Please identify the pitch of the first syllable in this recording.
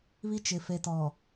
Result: high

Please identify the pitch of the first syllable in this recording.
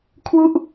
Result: falling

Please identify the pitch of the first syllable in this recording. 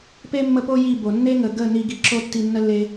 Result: high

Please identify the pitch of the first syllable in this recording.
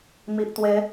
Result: low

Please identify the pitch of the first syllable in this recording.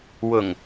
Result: low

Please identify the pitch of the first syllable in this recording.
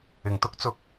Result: low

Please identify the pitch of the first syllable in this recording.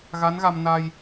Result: rising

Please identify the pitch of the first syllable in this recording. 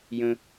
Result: high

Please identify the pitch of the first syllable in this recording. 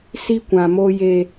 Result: high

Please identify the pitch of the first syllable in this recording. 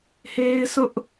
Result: high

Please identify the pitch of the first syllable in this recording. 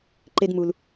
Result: high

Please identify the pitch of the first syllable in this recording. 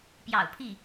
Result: low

